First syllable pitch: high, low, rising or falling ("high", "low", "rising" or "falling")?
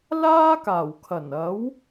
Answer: high